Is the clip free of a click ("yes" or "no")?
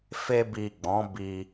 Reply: yes